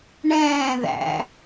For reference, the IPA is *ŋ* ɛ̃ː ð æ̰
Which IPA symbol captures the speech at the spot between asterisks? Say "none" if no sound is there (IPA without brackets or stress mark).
ɳ